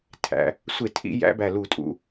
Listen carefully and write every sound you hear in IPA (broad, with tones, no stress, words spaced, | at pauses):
tʰæ̰˩˧ | sʷe˧˩˧tʰḭ˧˩˧jæ̰˩˧bæ˨˩ lu˧˩˧tʼṵ˩˧